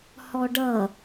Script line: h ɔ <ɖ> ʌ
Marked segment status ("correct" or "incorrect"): correct